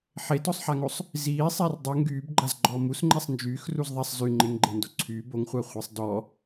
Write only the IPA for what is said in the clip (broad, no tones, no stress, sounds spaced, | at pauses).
ħ e t ɔ sˤ ħ a ŋ o sˤ | z iː sˤ ɛ r dˤ u ŋ ɡ yː b ɡ͡ǃ a z ɡ͡ǃ ɔː m u s ŋ͡ǃ ɛ sˤ n d͡ʒ yː x r u z ðˤ ɛ sˤ z y ŋ͡ǃ e ŋ ɡ͡ǃ e n d o ǀʰ y b o ŋ χʷ a χʷ e sˤ d ɔ